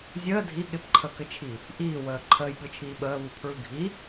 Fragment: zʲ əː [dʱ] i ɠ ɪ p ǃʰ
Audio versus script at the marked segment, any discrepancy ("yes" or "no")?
no